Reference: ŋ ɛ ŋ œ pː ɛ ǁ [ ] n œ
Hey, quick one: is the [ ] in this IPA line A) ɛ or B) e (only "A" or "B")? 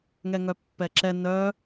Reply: A